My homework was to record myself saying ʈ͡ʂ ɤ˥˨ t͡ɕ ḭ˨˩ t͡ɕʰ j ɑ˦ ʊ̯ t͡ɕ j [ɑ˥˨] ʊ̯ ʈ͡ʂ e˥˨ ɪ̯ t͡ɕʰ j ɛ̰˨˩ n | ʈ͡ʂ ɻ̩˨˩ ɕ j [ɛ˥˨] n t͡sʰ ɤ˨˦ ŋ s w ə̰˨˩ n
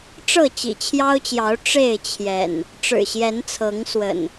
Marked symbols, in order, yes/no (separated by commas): no, no